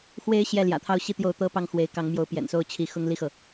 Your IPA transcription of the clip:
x w e˧˥ ɪ̯ ɕ j ɛ˥˩ l j ä̰˨˩ t̪ʰ ɑ˥˧ ʊ̯ ɕ i˥˧ t̪ j o˥˩ ʊ̯ t̪ ɤ˥ p ɑ˥˩ ŋ x w e˧˥ ɪ̯ k ɑ˧˥ ŋ m j o˧˥ ʊ̯ p j ɛ̰˨˩ n s o˥˩ ʊ̯ t͡ɕʰ i˧˥ x ʊ˥˧ ŋ l i˥˩ x ɤ˩

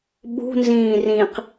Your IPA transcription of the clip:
ɓ ṳ n z ĩː r ĩ q

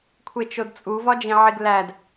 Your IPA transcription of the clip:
kʷʰ e t͡ʃ o d t͡sʼ u v ɒ d͡ʒ ĩ ʕ i ɡ l æ d

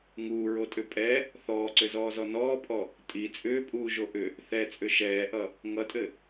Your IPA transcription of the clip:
ŋ uː ɹ o tʼ ʏ pʼ ɛ | θ ɔː ǀ ʏ z ɔː z ɔ n ɔː pʼ ɔ | tʼ i t͡sʼ ʏː pʼ uː ʒ o ʔ ʏ | θ ɛ t͡sʼ ʏ ʃ ɛː ʔ ʌ | ŋ ʌ tʼ ɘ

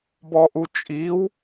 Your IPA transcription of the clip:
b ɔ ʔ u t͡ʃʼ i w

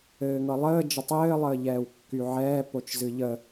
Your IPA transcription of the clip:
ɘː ŋ ɤ lˠ əː d͡ʒ ə tˤ ɘː lˠ əː ʎ ɛː w kː y ʕ ɛː p o t͡ʃ z ɨ ʎ ə

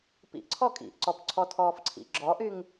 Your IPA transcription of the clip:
p ḭ ʔ ǀʰ ɔ kʼ ḭ ʔ ǀ ɔ p ǀʰ ɔ tʰ ɔː f ǀʰ ḭ ɡ͡ǁ ɔ ʔ y ŋ

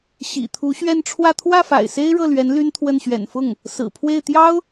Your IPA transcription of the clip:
ɕ ḭ˨˩ t̪ʰ u˧˥ ɕ ɥ ɛ˥˧ n ʈ͡ʂʰ w ä˥˧ t̪ʰ w ä˥˩ f a̰˨˩ ɪ̯ s e˥ ɪ̯ ɻ ɤ˥˩ l ɥ ɛ˧˥ n l y˥ n t̪ʰ w ə˥˩ n ɕ ɥ ɛ̰˨˩ n f ʊ˥˩ ŋ | s ɹ̩˨˩ pʰ w e˥˩ ɪ̯ t̪ j ɑ˥ ʊ̯

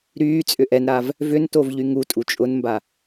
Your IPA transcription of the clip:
ɾ yː t͡sʼ ʏ ʔ ɛ n ɾ a v | v ʏ n t o v ʎ y ŋ u tʼ u t͡ʃʼ ʊ n m b a

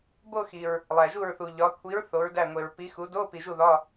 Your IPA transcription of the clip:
b o˥˧ x i˨ ɹ | lˠ æ˨ ʒ u˥˩ ɹ θ u˨ ʎ ɒ˨˥ kʷʰ i˨˥ ɹ θ o˨˥ ɹ d æ˥˩ ŋʷ e˨ ɹ p i˨˥ x u˨˥ d o˧˥˧ p i˨ ʒ u˥˩ ð ɒ˧˥˧

